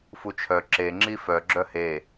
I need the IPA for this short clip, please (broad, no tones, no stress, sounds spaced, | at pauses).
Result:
f u t͡ʃʰ œ ǁ e ŋ͡ǁ i f œ ɡ͡ǁ œ h e